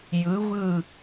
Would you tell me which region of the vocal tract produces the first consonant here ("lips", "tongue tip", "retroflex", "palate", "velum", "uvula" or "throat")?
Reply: palate